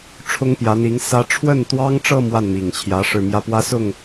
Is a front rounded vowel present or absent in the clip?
absent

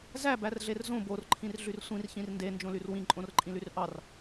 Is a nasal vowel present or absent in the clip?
present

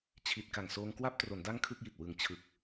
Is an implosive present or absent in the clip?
absent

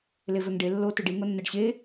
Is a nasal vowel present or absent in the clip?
absent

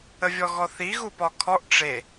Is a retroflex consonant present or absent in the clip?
present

